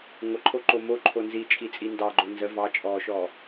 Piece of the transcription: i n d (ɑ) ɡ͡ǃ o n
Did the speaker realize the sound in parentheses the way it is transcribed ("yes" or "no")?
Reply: yes